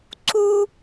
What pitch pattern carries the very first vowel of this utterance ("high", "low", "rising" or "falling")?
high